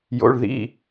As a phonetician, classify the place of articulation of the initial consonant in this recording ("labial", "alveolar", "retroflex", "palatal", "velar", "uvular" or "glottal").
palatal